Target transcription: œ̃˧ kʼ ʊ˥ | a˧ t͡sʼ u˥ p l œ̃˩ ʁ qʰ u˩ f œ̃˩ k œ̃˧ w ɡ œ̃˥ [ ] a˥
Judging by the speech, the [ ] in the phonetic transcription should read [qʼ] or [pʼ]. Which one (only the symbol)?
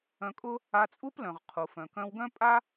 pʼ